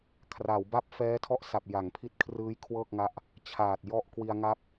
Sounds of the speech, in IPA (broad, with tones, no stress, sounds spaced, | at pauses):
kʰ r a˩˦ w b a˥˩ p̚ f ɛː˦˥ tʰ ɔ˥˩ ʔ s a˨˩ p̚ j a˩˦ ŋ pʰ i˦˥ t̚ kʰ r ɯː˦˥ j kʰ w ɤː˥˩ k̚ ŋ a˦˥ ʔ | t͡ɕʰ aː˨˩ t̚ j ɔ˥˩ ʔ k w i˧ a̯ ŋ a˦˥ p̚